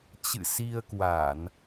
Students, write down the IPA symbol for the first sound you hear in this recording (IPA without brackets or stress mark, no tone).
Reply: t͡ɕ